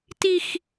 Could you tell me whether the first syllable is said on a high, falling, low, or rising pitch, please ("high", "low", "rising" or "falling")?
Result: high